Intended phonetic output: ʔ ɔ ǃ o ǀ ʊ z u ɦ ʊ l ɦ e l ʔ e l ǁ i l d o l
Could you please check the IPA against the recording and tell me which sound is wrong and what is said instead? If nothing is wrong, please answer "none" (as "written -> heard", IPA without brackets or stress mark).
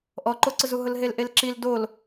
none